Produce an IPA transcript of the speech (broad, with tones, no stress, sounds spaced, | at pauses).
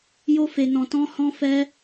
j o˧ f e˨ n ɔ̃˨ t ɔ̃˧ h ɔ̃˧ f ɛ˧